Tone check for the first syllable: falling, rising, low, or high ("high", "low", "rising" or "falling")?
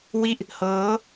falling